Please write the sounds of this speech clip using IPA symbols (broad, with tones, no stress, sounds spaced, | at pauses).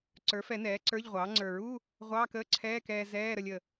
ǀ ə˞˩˥ f ɛ˨˩˦ n ɛː˩˥ ǀ ə˞˧˥˧ ʎ ʁʷ ɑː˩˥ ŋ͡ǀ ə˞˨˩˦ ɹ u˧˥˧ | ʁʷ ɑː˧˥˧ k əː˧˥˧ ǀʰ ɛː˧˥˧ k ɛː˧ z ɛː˧˥˧ ɾ ə˧ lʲ ə˨˩